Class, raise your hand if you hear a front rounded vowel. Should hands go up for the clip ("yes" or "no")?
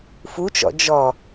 no